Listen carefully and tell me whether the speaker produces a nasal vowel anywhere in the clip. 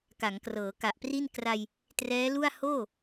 no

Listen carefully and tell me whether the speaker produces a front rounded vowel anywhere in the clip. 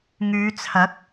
yes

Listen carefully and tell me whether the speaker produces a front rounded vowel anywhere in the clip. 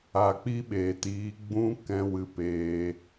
no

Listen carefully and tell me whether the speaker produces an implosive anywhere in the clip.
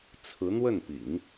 no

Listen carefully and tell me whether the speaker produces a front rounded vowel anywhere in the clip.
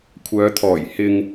yes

